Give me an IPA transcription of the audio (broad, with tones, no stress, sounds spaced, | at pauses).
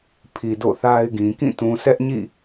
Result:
pʰ i˨ d o̰˦˨ θ a˦ ɪ̯ ɡ ĩ˨ k ĩ˦˨ t ũ˨ sʰ ɛ˦ ʔ ɲ ḭ˦˨